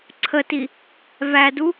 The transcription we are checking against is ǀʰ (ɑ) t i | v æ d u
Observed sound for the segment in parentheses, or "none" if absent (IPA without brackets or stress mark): ə